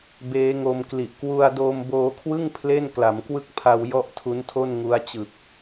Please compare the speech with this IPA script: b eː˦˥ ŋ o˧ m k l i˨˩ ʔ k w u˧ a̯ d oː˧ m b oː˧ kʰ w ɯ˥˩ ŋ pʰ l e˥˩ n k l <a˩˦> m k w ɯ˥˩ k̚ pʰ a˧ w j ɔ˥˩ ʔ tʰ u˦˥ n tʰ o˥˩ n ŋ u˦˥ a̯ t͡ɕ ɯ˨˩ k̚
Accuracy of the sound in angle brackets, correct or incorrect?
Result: correct